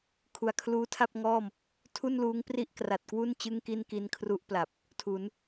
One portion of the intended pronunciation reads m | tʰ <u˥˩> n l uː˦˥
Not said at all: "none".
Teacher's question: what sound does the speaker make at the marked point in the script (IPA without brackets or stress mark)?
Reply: u˥˩